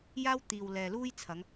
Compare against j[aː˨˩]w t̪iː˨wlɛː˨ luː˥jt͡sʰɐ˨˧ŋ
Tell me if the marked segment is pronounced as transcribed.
no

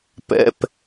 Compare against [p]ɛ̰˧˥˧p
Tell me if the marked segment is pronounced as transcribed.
yes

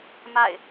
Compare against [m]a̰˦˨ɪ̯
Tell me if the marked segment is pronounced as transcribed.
yes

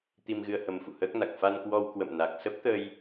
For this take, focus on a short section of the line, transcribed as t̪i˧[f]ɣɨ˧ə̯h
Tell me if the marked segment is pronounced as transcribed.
no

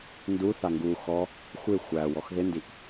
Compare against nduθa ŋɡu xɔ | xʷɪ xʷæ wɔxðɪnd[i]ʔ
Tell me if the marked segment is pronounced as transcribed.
yes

